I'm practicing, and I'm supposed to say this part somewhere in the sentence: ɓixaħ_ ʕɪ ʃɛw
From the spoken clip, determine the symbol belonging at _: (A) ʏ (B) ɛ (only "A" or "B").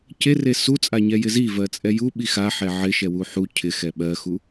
B